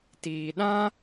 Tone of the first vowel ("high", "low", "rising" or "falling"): low